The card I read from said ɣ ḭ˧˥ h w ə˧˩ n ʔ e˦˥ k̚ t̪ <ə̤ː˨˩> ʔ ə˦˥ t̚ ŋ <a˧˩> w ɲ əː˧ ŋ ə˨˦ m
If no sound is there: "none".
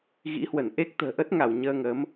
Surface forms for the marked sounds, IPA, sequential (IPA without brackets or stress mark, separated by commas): ə̤ː˨˩, a˧˩